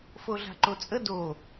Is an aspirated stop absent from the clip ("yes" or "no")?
yes